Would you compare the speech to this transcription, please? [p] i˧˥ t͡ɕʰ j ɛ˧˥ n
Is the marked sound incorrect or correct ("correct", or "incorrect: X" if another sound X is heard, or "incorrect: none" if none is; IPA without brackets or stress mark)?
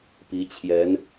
correct